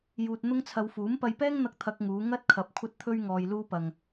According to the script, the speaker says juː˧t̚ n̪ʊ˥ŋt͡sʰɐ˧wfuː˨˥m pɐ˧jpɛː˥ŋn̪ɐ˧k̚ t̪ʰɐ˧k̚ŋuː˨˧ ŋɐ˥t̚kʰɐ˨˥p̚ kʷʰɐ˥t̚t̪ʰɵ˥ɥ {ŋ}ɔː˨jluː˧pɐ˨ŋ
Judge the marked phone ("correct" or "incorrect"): correct